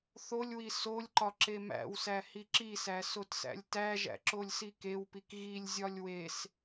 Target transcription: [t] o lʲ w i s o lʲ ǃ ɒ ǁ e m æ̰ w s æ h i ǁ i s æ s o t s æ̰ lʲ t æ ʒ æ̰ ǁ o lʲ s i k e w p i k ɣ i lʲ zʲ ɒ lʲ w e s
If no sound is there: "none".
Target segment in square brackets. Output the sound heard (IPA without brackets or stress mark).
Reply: θ